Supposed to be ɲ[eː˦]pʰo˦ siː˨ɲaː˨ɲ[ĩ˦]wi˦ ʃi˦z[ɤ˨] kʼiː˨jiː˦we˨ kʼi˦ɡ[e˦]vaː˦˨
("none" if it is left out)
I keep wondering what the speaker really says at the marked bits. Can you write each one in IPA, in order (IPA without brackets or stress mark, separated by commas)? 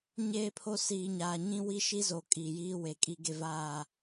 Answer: eː˦, ĩ˦, o˨, e˦